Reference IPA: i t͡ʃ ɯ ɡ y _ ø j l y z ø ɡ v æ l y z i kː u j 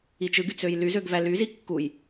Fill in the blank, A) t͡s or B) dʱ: A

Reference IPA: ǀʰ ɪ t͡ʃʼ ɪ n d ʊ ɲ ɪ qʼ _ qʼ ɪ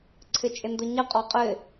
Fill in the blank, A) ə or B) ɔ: B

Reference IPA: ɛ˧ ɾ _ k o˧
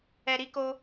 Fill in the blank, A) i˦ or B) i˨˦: A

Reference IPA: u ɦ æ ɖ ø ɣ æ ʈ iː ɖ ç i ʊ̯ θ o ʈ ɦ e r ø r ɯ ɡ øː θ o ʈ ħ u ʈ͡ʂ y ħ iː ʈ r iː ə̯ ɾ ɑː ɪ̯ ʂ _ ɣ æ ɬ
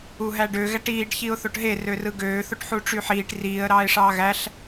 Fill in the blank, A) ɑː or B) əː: A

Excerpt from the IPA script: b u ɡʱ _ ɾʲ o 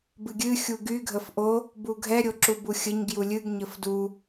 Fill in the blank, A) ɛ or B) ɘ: A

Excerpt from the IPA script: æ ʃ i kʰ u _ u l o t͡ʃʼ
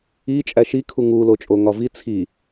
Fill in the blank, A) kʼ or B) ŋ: B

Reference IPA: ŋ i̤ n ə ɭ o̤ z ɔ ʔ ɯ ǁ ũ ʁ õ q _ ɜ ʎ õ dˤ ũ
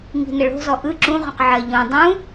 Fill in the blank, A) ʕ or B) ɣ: A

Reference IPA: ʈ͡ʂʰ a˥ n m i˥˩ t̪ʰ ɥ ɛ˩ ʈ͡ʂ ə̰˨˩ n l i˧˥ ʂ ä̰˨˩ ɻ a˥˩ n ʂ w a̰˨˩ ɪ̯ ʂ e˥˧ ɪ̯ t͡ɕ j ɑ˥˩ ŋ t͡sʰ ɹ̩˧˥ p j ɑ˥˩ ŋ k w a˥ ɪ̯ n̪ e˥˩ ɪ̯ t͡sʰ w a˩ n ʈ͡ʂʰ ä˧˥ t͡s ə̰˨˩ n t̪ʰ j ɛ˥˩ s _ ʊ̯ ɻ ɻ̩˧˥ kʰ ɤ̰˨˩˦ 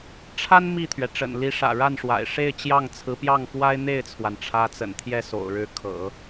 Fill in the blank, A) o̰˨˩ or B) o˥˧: A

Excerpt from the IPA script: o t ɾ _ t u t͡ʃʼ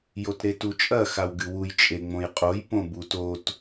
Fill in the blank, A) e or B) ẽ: A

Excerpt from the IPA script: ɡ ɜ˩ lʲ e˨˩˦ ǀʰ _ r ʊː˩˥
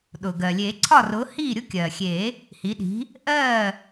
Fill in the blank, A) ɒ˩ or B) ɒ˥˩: B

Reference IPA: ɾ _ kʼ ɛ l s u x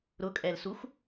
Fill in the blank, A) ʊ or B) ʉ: A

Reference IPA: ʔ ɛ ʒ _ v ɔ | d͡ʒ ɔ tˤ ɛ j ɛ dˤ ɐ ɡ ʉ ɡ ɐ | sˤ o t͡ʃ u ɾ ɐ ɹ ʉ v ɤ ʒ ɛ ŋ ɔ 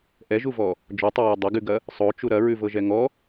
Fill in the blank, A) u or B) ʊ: A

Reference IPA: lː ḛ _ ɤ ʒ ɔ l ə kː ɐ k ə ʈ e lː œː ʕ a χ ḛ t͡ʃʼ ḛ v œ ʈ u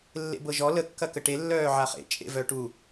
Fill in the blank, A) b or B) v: A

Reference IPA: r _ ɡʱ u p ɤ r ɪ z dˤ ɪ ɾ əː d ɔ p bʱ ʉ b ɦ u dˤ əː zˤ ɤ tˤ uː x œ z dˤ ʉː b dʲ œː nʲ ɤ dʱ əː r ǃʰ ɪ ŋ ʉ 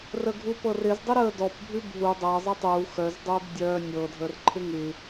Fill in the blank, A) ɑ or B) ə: B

